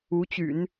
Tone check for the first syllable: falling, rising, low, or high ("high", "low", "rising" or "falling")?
rising